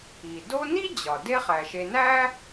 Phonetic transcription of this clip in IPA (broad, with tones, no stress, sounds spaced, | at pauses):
i˩ d o˦ n i˥ d͡ʑ ɒ˩ d e˦ χ æ˩ ʃ e˨ n æ˥